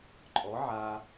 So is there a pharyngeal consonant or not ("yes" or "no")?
yes